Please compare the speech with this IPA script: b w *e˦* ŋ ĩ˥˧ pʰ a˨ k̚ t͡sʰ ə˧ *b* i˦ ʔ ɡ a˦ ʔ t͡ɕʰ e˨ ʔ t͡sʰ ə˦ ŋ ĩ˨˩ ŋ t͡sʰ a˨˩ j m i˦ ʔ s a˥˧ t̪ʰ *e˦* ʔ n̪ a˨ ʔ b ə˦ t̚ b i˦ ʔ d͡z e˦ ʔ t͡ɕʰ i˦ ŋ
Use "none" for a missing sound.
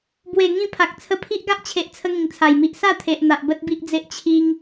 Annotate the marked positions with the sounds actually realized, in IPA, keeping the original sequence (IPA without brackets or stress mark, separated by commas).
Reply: e˨˩, pʰ, e˨